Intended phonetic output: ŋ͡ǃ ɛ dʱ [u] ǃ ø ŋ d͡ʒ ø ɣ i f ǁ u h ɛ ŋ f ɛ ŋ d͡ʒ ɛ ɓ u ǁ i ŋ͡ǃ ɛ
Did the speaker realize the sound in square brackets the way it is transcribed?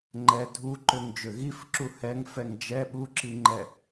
yes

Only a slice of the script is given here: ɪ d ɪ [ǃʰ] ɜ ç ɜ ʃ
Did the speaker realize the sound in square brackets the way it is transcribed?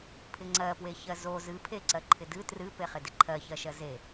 yes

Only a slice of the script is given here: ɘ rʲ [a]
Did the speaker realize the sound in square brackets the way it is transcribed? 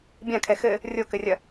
no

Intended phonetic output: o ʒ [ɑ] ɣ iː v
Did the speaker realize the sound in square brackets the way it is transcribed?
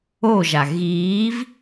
no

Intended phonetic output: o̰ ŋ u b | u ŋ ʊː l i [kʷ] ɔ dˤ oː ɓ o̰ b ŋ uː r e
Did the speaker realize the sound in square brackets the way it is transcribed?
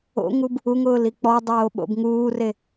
no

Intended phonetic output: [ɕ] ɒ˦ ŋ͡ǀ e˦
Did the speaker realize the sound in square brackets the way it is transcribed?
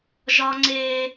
no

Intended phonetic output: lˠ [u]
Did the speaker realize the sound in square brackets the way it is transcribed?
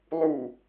yes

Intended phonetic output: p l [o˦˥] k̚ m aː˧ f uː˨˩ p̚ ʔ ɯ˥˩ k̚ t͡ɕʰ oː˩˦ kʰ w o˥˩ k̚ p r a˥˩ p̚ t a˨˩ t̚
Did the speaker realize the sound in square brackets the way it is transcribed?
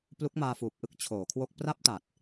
no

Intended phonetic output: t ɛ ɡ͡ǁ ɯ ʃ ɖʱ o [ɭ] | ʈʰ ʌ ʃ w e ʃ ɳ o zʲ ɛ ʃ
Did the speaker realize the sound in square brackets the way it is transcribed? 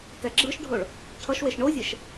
yes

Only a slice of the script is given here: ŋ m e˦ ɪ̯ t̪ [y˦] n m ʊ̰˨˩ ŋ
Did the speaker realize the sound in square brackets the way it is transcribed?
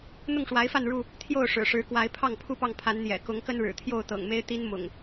no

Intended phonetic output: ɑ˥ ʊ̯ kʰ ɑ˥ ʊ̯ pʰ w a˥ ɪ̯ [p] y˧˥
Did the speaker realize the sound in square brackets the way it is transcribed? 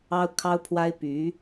yes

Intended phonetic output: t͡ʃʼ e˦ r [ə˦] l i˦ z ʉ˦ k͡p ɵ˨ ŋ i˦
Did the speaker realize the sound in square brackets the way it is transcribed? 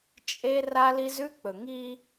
no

